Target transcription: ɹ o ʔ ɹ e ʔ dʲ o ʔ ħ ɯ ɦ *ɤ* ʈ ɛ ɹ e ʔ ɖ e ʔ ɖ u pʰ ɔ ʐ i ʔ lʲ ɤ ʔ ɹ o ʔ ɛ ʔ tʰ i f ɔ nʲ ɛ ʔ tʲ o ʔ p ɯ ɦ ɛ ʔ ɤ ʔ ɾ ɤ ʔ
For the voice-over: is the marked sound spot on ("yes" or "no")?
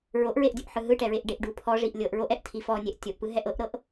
no